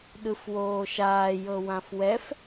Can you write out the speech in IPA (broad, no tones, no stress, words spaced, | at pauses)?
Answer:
ɗɯfwoːʃaː jɤwãfwɛf